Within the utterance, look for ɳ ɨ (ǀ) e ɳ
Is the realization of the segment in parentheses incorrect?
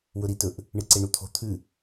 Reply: no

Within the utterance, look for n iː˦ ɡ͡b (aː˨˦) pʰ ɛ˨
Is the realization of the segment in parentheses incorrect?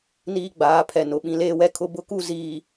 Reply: no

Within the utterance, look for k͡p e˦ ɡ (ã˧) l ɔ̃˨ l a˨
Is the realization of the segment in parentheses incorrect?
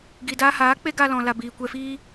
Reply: yes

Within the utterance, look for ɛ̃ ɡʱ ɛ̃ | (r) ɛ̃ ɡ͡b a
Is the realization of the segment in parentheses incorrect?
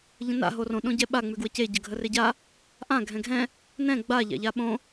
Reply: yes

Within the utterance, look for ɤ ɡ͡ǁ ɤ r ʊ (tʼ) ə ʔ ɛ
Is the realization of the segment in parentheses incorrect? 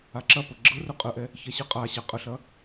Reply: yes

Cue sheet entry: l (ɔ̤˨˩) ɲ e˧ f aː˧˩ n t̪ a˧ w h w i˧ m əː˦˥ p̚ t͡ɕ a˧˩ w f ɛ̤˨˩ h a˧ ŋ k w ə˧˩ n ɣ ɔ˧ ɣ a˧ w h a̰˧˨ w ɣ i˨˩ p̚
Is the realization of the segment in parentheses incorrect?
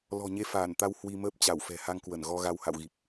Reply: no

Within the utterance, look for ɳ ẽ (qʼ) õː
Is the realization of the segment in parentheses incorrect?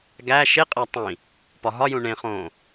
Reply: yes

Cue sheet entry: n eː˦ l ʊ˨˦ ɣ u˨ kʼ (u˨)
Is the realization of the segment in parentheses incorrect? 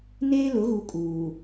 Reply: yes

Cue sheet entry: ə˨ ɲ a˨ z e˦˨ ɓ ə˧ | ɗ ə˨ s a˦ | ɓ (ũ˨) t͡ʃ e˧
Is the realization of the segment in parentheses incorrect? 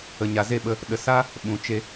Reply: no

